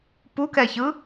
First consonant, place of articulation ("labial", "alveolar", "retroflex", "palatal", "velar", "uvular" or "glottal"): labial